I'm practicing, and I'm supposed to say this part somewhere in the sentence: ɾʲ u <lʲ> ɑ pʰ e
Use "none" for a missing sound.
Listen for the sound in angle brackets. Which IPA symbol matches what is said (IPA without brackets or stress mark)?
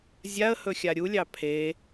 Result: lʲ